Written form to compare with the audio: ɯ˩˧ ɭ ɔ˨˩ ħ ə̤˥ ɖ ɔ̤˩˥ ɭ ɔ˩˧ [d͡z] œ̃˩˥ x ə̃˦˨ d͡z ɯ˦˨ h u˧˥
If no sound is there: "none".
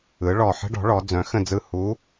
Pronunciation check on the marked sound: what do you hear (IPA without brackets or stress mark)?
d͡z